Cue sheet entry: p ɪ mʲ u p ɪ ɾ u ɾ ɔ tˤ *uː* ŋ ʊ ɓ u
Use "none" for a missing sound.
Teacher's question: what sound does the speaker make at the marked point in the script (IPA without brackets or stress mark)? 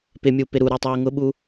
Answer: uː